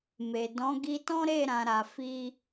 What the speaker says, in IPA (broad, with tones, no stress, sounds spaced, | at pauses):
m e˨ d ɔ̃˨˦ ɡ i˧ t ɔ̃˦ ɾ e˦˨ ɾ ã˨˦ ɾ a˧ f i˦